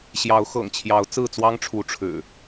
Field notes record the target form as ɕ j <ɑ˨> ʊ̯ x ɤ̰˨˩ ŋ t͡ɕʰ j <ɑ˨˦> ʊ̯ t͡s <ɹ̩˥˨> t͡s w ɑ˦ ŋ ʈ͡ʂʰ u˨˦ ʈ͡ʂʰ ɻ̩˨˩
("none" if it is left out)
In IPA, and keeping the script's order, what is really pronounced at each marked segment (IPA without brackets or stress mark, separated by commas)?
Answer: ɑ˨˦, ɑ˨˦, ɹ̩˥˨